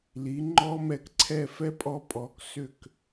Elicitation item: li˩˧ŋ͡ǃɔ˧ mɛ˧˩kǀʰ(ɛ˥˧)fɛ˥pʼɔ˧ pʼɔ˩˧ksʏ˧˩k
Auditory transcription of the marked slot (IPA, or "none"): ɛ˥˧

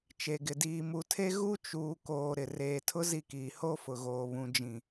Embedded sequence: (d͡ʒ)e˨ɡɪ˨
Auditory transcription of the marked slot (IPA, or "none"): t͡ʃ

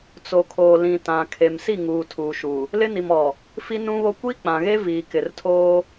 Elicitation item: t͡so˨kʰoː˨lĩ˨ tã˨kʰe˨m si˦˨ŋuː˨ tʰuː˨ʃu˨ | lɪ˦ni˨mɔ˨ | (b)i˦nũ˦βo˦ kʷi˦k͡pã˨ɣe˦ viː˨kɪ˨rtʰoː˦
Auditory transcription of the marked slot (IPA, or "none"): f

